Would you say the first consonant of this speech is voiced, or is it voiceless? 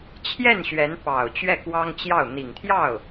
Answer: voiceless